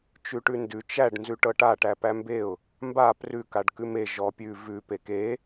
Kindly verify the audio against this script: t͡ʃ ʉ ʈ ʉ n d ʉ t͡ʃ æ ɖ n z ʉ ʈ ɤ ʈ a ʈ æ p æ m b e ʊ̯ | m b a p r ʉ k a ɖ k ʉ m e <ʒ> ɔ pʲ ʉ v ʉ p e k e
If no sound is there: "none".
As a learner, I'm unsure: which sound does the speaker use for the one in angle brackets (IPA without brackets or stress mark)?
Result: ʒ